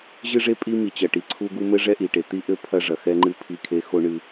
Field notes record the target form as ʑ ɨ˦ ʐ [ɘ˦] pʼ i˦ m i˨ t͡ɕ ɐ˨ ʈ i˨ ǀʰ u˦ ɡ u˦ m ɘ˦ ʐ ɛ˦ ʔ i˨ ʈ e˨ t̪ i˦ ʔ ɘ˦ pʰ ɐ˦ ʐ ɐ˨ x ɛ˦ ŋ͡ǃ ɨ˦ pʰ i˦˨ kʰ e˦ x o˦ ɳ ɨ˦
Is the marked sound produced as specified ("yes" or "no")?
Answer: no